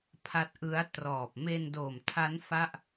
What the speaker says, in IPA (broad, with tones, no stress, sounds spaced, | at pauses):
pʰ a˦˥ t̚ ʔ ɯ˦˥ a̯ t r ɔː˨˩ p̚ m e˧ n d oː˨˩ m tʰ a˦˥ n f a˥˩ ʔ